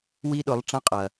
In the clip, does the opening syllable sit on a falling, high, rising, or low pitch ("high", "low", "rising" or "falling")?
high